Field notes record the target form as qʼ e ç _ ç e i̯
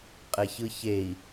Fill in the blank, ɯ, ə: ɯ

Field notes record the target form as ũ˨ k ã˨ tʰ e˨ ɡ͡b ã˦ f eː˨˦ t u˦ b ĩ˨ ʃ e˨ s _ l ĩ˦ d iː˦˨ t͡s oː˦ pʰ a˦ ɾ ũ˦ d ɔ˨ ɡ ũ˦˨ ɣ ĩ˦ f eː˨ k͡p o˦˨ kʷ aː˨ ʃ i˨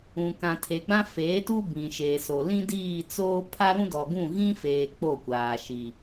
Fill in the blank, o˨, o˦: o˨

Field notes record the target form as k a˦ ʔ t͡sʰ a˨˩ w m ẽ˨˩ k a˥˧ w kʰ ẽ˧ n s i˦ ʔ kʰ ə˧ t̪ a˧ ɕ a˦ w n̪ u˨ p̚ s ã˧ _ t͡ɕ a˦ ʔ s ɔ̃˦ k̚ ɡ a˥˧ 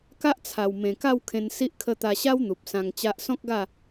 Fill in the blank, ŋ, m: ŋ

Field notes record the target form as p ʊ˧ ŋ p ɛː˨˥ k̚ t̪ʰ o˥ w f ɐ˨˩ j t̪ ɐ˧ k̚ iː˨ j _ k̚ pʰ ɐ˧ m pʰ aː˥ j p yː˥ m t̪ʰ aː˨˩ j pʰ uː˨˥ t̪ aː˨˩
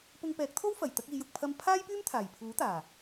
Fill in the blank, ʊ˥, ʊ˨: ʊ˨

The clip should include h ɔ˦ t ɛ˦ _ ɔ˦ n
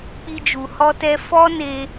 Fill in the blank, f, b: f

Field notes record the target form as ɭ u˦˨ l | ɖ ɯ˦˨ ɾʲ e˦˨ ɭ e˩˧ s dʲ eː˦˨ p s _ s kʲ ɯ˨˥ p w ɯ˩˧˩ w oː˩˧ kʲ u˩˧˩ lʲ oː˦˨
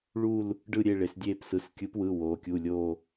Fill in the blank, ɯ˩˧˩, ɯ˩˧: ɯ˩˧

